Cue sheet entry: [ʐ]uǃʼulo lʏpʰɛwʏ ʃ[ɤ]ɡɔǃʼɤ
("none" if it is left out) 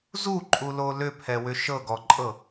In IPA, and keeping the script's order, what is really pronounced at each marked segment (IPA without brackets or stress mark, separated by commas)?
z, ɤ